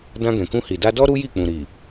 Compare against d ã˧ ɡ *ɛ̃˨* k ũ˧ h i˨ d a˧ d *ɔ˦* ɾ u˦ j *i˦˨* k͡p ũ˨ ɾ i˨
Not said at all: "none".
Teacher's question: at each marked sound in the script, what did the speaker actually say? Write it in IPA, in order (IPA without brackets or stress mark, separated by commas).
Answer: ɛ̃˨, ɔ˦, i˦˨